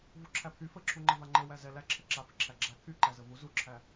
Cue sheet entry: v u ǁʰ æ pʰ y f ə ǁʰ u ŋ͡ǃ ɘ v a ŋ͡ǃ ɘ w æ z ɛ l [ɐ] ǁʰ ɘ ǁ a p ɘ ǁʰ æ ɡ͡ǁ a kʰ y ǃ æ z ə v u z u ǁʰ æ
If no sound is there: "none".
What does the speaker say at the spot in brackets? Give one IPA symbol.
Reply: æ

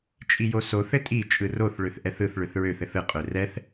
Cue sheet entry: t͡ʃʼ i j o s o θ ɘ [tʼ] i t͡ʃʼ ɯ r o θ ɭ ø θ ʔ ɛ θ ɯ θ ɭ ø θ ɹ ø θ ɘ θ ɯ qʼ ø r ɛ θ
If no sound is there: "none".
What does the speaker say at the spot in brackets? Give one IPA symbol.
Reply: tʼ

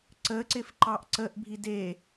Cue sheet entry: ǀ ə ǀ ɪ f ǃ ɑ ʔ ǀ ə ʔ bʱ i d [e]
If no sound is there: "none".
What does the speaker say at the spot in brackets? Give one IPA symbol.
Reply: e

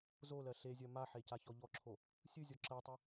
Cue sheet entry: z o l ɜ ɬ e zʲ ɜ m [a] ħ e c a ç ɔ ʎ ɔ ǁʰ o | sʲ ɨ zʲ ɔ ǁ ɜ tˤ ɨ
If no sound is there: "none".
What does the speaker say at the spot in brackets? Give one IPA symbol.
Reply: a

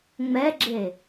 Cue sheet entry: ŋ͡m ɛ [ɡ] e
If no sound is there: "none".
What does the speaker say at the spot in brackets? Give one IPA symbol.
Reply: ɡ͡ǁ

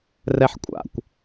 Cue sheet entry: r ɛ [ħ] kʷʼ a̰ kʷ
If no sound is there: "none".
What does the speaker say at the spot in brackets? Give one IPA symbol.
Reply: ħ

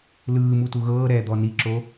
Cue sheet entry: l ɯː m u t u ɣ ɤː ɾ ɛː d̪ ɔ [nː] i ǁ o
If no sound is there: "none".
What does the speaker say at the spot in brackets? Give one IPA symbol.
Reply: n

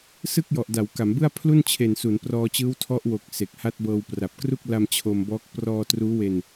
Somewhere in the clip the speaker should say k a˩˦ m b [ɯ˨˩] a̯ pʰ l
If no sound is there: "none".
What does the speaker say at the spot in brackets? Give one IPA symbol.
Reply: ɯ˥˩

